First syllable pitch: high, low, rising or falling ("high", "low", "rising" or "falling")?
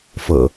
low